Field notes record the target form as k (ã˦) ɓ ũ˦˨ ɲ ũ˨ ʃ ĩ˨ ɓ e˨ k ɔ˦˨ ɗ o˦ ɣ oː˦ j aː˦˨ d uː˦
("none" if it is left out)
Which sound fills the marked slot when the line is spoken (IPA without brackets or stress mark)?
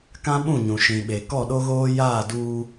ã˦